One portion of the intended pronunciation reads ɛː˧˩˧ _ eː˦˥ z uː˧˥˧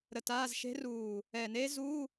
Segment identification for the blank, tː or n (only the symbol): n